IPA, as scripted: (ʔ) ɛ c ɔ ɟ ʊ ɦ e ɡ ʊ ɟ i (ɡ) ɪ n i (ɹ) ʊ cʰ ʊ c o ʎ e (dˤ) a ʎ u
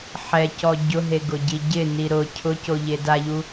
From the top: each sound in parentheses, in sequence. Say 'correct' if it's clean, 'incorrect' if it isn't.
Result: incorrect, incorrect, incorrect, incorrect

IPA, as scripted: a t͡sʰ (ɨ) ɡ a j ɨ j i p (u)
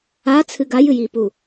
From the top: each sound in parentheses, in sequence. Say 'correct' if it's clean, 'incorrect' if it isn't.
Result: correct, correct

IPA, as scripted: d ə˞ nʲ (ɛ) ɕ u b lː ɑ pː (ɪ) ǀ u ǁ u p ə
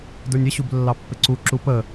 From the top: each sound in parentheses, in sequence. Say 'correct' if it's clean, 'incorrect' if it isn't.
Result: incorrect, correct

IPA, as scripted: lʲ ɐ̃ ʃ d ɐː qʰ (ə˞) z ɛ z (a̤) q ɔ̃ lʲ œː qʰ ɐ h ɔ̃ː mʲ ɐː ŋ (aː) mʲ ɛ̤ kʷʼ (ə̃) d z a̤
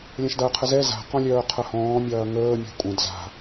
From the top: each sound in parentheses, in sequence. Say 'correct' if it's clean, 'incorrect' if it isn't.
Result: incorrect, correct, incorrect, incorrect

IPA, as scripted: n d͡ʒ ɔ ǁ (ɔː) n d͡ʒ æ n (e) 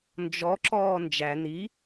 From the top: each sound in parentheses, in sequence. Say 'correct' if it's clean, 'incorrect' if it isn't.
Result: correct, incorrect

